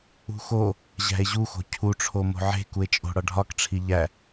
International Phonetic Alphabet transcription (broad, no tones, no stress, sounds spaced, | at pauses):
ṳ x o | ʑ æ̤ e̯ ʑ u x o̤ cʰ u ʈ͡ʂʰ o m o̤ ʕ e̤ k u e̯ t͡ʃʼ o̤ ɽ ɒ ɖʱ ɒ k ʈ͡ʂʰ i ʎ æ